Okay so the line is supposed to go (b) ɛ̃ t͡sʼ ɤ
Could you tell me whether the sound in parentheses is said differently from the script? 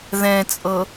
yes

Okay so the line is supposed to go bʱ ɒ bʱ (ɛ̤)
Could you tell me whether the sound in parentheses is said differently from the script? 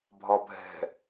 no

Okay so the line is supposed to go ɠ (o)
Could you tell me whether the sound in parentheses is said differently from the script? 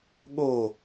no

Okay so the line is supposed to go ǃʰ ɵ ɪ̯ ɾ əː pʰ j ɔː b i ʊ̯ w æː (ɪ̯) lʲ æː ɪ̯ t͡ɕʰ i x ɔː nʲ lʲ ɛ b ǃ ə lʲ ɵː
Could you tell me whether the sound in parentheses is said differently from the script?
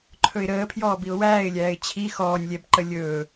no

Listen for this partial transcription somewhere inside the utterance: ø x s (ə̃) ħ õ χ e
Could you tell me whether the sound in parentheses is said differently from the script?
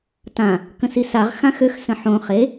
no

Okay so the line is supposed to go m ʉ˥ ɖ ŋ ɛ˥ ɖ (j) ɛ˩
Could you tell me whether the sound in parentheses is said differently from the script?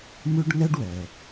yes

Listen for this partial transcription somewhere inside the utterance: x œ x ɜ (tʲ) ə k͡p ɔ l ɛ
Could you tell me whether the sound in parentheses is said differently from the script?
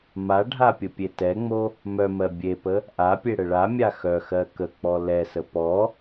yes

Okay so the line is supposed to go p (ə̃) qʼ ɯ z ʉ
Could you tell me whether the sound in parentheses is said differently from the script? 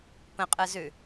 no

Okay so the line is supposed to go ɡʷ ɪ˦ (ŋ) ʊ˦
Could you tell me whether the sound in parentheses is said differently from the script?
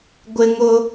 no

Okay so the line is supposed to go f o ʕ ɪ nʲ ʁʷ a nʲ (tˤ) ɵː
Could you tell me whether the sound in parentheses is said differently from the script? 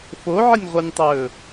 no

